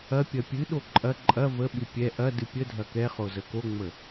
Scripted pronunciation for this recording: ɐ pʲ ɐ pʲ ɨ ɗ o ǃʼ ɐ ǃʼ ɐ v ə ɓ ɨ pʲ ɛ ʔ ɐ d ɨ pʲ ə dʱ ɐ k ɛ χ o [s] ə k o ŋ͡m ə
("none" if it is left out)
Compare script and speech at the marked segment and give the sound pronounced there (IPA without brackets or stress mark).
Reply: z